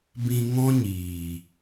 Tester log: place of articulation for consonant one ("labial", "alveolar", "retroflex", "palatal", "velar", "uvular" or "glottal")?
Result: labial